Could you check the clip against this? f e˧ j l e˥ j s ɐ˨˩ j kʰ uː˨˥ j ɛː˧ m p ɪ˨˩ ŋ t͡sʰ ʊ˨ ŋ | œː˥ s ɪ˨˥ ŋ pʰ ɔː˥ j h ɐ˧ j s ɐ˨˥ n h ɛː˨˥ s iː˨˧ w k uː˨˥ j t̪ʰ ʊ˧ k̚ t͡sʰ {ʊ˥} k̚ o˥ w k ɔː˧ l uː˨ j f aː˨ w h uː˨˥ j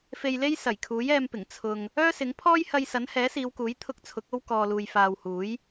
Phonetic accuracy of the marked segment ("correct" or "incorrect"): incorrect